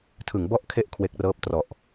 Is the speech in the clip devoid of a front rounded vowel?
yes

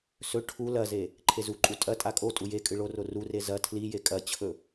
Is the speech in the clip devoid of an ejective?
no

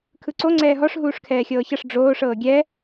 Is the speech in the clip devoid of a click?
no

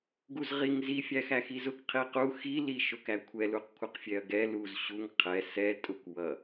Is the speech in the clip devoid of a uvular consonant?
no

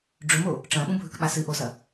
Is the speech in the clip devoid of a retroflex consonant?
no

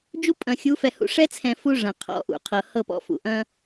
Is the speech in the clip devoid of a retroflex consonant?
no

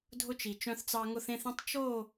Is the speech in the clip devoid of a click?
yes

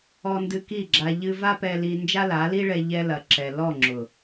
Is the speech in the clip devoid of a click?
no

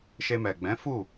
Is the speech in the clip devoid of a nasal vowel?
no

